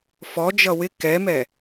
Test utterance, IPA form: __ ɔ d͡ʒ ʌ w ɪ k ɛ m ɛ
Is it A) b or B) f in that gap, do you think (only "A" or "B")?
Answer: B